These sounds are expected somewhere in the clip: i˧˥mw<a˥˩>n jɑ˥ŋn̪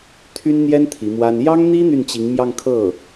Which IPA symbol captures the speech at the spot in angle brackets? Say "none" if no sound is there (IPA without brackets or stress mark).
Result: a˥